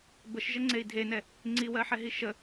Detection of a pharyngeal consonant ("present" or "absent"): present